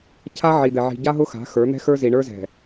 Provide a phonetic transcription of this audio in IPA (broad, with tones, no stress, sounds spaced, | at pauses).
cʰ a˦ ʕ i˨ d̪ ɛ˨ ʕ i̤˨ ɟ a˦ ɦ ʊ˦ x a̤˨˦ x ə˞˨˦ n̪ ɛ̤˦ x ə˞˦ z i˨ ɳ ə˞˦ z ɛ̤˨